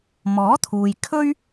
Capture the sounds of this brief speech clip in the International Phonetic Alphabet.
m ɔː˨˥ t̪ʰ uː˨ j kʰ ɵ˥ ɥ

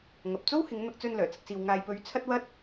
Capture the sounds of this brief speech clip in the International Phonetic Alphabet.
ŋ ɐ˨ p̚ t͡s o˥ w h ɪ˨˧ ŋ n̪ ɐ˧ k̚ t͡s ɵ˧ n l œː˨˩ t͡s ɪ˧ k̚ s iː˧ w ŋ aː˧ j p ɵ˧ ɥ t͡sʰ ɐ˥ t̚ w ɐ˥ t̚

